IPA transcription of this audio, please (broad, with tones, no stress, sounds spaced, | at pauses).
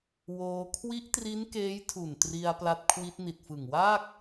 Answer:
w oː˧ kʰ w i˦˥ ʔ t r i˦˥ n k eː˦˥ j tʰ u˨˩ n t r i˧ a̯ p l a˦˥ t̚ kʰ w i˦˥ t̚ n i˨˩ t̚ f ɯ˨˩ ŋ w aː˥˩ k̚